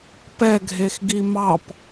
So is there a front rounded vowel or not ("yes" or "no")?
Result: no